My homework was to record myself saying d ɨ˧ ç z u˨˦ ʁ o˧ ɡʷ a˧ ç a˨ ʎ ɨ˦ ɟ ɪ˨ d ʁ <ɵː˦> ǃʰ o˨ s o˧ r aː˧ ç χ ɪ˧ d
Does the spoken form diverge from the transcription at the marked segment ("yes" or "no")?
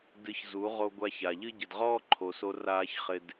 yes